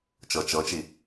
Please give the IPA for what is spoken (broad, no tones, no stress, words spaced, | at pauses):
t͡ʃɤt͡ʃɤt͡ʃi